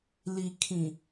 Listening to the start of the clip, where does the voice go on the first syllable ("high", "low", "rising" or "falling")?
low